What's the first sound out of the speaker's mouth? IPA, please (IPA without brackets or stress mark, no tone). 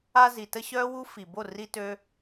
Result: a